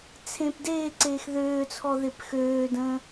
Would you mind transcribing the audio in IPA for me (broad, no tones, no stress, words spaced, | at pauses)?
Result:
t͡sʰẽp deːǀeːx ðøːt͡sʰɔ ðepxøːdə̃ː